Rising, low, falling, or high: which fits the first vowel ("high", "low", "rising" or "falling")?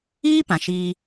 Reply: high